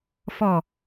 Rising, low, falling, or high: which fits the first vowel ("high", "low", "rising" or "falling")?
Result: low